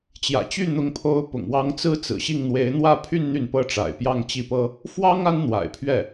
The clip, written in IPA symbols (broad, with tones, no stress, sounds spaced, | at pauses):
t͡ɕ j ä̰˨˩ t͡ɕ y˥˩ n̪ ʊ˧˥ ŋ pʰ o˧˥ ʊ̯ p ʊ̰˨˩ ŋ w ɑ˧˥ ŋ t͡s ɹ̩˥ t͡s ɹ̩˨˩ ɕ i˥˩ ŋ n̪ w e˧˥ ɪ̯ n̪ w ä˥˧ pʰ y˥˧ n n̪ y˥˩ n p ɤ˥ ʈ͡ʂ a̰˨˩ ɪ̯ p j ɑ˥˧ ŋ t͡ɕ i˥˩ p ɤ˥ | f w ɑ˥ ŋ a˥ n n̪ w a̰˨˩ ɪ̯ pʰ ɥ ɛ˥˩